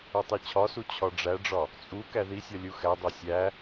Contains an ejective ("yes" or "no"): yes